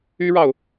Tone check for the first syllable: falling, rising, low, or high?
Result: high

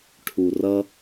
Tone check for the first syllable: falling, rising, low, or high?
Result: low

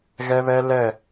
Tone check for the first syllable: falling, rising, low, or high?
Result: high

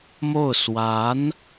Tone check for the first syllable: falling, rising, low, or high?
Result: falling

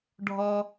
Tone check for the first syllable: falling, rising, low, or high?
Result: high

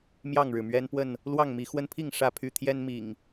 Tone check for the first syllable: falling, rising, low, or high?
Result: falling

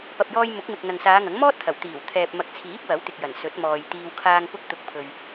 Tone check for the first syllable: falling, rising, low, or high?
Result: low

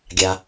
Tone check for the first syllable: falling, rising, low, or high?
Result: low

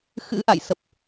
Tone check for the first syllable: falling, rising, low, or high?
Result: rising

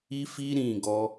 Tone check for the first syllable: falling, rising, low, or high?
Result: high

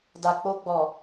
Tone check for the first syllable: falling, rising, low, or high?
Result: low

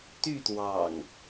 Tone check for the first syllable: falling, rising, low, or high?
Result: falling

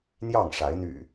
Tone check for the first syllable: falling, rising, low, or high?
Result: falling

